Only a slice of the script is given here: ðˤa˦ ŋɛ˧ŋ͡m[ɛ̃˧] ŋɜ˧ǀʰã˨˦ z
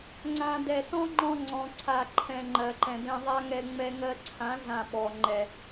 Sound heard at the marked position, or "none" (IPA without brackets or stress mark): ɛ˧